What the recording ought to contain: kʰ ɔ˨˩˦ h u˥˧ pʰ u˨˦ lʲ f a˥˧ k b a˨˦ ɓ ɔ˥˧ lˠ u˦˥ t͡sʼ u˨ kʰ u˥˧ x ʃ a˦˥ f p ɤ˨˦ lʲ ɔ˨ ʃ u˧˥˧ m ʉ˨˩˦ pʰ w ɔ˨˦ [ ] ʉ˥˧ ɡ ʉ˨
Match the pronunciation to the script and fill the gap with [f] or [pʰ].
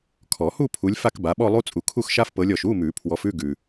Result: f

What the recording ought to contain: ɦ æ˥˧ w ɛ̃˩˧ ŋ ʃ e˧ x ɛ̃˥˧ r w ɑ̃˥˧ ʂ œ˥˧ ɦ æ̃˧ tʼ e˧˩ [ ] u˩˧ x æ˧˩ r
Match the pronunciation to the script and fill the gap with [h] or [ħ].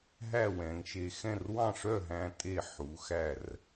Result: ħ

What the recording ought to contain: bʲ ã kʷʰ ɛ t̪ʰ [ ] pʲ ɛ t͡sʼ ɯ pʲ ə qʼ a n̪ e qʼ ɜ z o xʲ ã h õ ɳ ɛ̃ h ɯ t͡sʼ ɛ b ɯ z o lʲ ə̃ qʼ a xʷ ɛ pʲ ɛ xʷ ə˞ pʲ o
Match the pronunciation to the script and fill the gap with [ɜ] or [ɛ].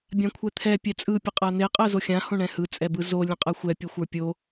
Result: ɛ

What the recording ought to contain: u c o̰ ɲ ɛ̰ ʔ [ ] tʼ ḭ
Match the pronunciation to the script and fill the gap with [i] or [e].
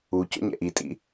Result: i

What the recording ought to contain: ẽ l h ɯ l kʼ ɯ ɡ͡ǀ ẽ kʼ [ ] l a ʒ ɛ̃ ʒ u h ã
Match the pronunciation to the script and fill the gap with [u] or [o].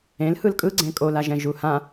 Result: o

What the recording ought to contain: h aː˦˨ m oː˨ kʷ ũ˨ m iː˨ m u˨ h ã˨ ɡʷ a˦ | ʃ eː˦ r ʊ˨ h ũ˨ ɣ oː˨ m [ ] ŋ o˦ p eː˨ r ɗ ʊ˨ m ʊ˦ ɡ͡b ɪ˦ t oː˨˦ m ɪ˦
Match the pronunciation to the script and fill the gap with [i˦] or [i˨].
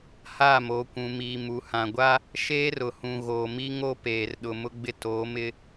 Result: i˦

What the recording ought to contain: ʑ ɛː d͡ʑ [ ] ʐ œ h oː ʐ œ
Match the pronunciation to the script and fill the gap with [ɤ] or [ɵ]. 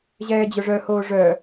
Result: ɵ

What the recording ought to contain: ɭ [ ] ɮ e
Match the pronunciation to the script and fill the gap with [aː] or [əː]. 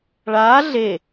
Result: aː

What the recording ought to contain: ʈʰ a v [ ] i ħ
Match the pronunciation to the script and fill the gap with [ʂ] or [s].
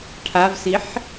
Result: s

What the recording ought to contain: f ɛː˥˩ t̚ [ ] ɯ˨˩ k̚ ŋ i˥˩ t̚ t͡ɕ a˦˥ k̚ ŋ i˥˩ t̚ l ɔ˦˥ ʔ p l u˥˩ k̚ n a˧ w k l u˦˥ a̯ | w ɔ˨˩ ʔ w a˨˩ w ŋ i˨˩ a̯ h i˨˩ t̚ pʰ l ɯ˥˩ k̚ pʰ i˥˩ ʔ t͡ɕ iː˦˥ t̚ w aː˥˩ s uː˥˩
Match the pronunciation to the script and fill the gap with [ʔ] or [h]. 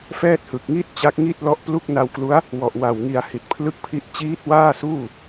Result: h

